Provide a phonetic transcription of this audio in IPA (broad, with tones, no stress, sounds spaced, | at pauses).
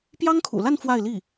p j ɑ˥ ŋ kʰ ṵ˨˩ l a˥˧ n f w a˥˧ ɪ̯ l i˥˩